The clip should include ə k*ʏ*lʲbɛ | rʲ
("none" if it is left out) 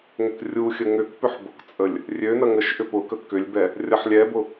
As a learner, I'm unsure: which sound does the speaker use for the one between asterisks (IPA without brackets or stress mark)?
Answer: ʏ